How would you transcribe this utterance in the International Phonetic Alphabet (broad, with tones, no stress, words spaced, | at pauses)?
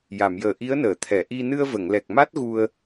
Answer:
ja˨˩˨mjəː˨˩ʔi˧˥ə̯nəː˨˩˨ t̪ʰɛ˨˩˨ʔi˧ nɨ˧ə̯və˨˩˨ŋlɛ˨˩k̚ ma˦˥t̚ɣu˧ə̯